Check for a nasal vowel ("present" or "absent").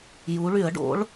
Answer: absent